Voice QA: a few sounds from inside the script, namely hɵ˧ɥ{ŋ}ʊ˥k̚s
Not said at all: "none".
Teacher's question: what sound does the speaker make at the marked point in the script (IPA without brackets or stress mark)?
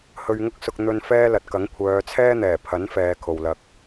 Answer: ŋ